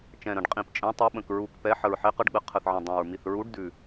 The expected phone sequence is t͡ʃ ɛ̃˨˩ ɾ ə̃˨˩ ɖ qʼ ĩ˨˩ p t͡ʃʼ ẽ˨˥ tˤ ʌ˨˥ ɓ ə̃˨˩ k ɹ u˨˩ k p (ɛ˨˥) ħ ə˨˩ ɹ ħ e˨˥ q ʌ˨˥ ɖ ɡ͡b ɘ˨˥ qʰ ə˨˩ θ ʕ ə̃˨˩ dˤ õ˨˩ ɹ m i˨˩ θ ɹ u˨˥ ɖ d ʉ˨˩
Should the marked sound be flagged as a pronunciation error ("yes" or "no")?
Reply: no